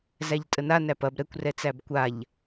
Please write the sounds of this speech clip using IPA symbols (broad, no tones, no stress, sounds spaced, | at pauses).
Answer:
z æ ʎ tʼ ə n a n æ p ɐ b ɾ ɛ kʷ r ɛ t͡s æ b kʷ a ʎ